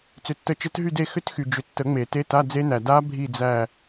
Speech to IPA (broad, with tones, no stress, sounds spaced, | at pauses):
t͡s ʏ˨ tː ə˨˦ t͡ʃ ə˨˦ t ɦ y˦˨ d e˦˨ x ʏ˦˥ t x y˨ d͡ʒ ʏ˨ tː ə˨˩˦ ŋ͡m e˨˩˦ t e˧˥˧ t a˧˥˧ d͡z e˦˥ n æ˨ d a˦˥ bʱ i˦˨ d͡z æ˦˨